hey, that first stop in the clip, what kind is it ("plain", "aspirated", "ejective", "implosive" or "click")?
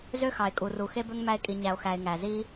ejective